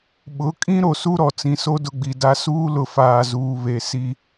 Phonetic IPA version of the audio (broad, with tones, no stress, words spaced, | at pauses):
ɓʊ˨˦ kʼĩ˦ ɾo˨su˦ɾɔ˨t͡sĩ˨ so˦dʊ˦˨ɡ͡bi˨da˦ suː˦lʊ˨faː˨zuː˨ βe˨si˦